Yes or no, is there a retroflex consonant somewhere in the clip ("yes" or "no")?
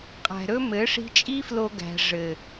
yes